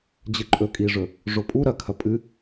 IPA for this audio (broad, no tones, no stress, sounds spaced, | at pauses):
d͡ʑ ɨ ǃʼ ɵ kʼ i ʐ ɵ | ʐ o pʼ u ɾ ɐ kʰ ɐ pʼ ɨ